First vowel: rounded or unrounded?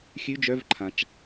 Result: rounded